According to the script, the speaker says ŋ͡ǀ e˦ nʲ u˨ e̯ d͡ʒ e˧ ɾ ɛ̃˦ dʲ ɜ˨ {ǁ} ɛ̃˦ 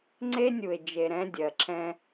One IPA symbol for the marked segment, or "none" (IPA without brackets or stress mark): ǁ